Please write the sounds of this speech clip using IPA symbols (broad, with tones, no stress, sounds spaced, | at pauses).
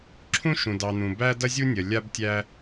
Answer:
ǁʰ ũ˦ ʃ ũ˨ d ɑ˨ n̪ ũ˨ b æ˦ d ɐ˦ zʲ u˦ nʲ ɐ˨ lʲ a˦ b tʲ æ˦